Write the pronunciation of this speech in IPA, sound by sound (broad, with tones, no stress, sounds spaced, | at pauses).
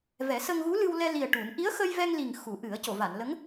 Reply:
v ɛ˨˩˦ s ə˧ ŋ ɣ u˧˥ l ɨ˧ w l ɛ˧ l i˨˩ ə̯ ʈ u˨˩˦ n ʔ i˧˥ ə̯ x ə˧ j v ɛ˧ ŋ l i˨˩ ŋ x u˨˩˦ ʔ ɨ˨˩˦ ə̯ c o˨˩˨ v a˨˩˨ n l ə˧˥ ŋ